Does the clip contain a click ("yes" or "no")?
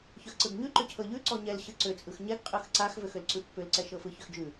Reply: yes